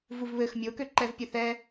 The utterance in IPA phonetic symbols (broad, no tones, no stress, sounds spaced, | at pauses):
v u v β ɘ x mʲ o k ø ǃ ɛ v pʲ ɘ θ ɛ